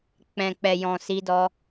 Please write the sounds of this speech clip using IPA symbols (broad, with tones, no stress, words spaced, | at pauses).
k͡pɛ̃˨k͡pɛ˨jɔ̃˨ si˧dɔ˧